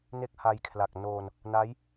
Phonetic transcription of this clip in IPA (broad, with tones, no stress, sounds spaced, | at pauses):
n e˥˩ k̚ h a˧ j kʰ l a˨˩ k̚ n oː˧ n | n a˦˥ j